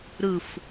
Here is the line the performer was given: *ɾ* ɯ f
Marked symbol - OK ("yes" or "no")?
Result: yes